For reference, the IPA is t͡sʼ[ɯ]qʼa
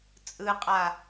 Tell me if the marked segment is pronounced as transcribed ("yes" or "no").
yes